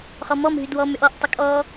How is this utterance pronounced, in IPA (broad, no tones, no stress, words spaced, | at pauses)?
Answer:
χɔmɔm ɦydwɔ mʏʔɔʔ tˤʏkʼɔ